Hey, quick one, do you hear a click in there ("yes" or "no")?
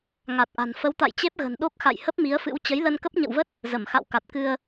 no